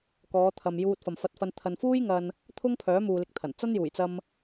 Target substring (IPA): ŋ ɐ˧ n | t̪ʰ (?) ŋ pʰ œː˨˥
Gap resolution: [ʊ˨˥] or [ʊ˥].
ʊ˥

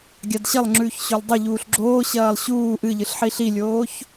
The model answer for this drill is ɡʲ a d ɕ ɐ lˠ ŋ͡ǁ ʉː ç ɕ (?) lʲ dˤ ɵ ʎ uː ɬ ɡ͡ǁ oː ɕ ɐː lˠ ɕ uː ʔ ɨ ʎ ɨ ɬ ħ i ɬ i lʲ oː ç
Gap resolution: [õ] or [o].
o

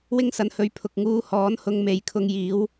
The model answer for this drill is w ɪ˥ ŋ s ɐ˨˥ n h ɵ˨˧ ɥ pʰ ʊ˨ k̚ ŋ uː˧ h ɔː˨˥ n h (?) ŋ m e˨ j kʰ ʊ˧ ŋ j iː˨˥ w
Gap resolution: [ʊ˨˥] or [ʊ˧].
ʊ˧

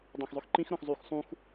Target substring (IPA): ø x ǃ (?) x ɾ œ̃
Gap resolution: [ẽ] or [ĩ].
ĩ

